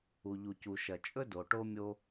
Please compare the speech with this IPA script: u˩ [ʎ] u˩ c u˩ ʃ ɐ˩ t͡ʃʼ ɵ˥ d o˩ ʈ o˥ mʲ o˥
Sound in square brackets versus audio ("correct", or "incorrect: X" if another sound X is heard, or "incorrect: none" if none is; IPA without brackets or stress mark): correct